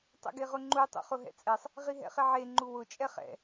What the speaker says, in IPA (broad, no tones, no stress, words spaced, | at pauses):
tˤɛ̰ɡeʁʊŋ͡ǃu tˤṵχʊɦɛ̰t͡sʼɛsˤ | ʁiɦɛ̰χɪʕe ŋ͡ǃuwʊ t͡ʃʼɛχɛ̰